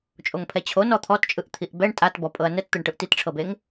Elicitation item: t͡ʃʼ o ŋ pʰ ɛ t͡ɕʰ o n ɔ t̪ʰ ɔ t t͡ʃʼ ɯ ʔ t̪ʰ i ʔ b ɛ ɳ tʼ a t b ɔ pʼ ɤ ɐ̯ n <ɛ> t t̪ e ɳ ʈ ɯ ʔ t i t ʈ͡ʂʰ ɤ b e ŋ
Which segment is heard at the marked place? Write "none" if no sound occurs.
ɛ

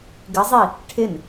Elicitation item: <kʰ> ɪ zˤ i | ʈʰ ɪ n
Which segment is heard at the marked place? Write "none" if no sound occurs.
ɡ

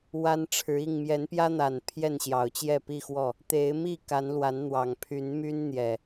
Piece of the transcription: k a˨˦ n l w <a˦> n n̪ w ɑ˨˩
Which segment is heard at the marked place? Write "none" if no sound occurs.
a˨˦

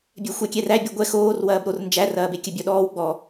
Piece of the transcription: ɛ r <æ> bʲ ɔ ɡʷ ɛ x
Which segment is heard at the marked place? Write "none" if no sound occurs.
æ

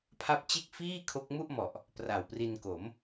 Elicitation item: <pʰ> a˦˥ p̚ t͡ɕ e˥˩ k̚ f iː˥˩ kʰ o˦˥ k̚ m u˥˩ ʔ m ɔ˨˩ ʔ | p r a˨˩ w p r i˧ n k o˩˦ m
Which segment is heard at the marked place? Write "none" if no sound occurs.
pʰ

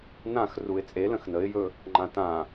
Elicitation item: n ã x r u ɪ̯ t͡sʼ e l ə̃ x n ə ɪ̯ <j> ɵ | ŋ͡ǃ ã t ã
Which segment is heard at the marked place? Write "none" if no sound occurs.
j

